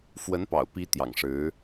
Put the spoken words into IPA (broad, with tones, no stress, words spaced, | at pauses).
fwə˧˥npɑ̰˨˩ʊ̯pi˧˥ t̪jɑ̰˨˩ŋʂɻ̩˧˥